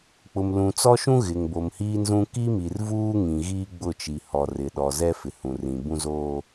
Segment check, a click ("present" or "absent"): absent